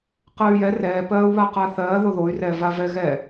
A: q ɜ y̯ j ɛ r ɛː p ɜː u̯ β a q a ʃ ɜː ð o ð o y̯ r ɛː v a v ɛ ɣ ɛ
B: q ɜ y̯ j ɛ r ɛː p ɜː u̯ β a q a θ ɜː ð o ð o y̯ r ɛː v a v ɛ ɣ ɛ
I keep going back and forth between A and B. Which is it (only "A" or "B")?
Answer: B